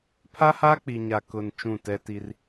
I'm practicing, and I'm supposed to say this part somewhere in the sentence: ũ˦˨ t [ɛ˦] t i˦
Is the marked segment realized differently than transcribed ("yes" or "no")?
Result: no